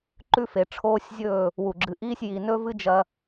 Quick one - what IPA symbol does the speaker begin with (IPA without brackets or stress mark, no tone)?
ǃ